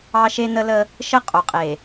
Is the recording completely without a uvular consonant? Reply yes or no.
no